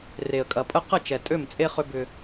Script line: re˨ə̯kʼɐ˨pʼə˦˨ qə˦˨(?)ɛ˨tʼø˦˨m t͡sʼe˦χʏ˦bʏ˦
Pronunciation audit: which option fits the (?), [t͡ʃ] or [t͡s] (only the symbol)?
t͡ʃ